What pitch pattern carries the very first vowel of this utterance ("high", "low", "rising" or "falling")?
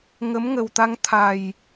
rising